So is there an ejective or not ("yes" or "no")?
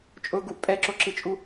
yes